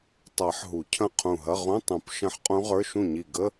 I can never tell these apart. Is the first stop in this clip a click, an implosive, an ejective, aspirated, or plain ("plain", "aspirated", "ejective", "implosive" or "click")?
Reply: plain